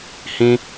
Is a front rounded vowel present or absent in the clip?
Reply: absent